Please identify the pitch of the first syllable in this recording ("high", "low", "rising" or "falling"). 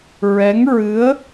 rising